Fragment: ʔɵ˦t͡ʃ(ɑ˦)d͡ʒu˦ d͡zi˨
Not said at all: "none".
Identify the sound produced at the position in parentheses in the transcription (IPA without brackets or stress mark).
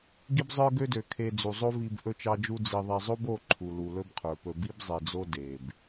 ɑ˦